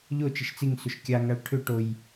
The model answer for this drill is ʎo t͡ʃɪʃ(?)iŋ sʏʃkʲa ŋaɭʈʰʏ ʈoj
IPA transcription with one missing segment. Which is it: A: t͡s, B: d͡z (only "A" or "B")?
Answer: A